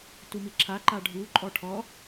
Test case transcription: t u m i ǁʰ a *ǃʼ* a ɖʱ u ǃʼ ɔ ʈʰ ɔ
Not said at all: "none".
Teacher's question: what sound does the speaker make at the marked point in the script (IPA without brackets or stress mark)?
ǃ